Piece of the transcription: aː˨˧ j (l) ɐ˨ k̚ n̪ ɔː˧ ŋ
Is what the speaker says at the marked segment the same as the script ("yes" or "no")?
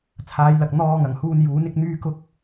yes